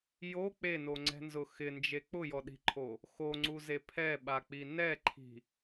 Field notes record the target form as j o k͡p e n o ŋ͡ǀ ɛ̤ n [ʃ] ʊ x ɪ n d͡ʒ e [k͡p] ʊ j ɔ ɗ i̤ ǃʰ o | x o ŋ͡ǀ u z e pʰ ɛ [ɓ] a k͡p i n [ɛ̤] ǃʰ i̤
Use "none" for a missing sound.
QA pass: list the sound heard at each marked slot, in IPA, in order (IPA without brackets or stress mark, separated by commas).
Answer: z, k͡p, ɓ, ɛ